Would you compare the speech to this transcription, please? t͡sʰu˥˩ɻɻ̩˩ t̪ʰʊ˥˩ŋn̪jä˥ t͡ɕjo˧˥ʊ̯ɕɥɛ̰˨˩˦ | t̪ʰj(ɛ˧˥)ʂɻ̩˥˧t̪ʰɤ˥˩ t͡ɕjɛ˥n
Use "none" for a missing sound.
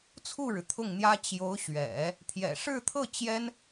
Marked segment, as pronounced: ɛ̰˨˩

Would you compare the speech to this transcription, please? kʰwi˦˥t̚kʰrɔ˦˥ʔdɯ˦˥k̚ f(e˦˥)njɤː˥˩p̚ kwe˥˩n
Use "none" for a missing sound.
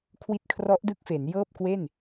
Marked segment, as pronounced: e˩˦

